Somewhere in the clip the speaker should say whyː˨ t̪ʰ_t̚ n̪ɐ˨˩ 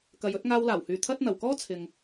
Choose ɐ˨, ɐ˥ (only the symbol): ɐ˥